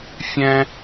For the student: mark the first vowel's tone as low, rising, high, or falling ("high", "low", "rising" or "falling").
high